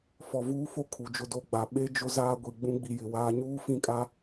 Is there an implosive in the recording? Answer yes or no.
yes